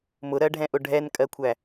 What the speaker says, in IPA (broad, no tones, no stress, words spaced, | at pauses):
mʊɾɜɖʱɛ̃ʔʊ ɖʱɛnkʼɜkʷʰæ